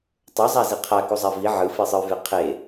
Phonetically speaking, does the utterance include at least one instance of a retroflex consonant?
no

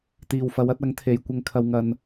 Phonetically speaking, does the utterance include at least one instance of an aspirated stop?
yes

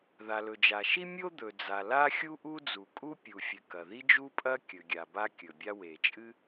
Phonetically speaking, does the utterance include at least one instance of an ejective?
yes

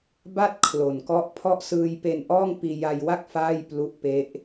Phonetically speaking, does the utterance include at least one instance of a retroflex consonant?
no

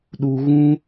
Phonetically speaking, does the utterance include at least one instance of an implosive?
yes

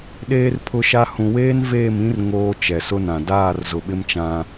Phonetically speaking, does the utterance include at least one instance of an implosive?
yes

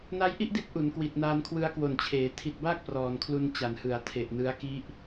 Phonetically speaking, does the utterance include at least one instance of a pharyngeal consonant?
no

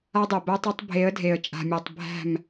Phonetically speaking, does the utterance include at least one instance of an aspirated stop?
no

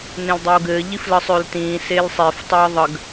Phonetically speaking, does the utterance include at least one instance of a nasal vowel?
yes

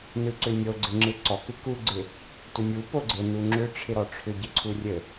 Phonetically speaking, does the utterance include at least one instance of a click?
yes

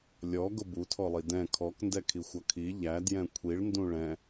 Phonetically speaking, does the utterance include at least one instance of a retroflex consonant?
yes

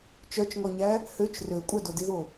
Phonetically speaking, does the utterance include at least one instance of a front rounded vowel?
yes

